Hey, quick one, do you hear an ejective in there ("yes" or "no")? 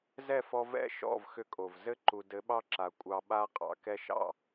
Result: yes